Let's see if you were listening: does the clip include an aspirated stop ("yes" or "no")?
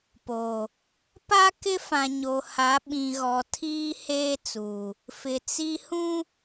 yes